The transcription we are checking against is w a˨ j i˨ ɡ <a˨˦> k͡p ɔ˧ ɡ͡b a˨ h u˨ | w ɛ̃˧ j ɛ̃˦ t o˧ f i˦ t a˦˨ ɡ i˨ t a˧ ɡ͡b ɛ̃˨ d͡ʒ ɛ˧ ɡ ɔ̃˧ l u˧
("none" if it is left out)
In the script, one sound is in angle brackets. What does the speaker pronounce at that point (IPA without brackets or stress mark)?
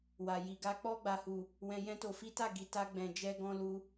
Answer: a˨˦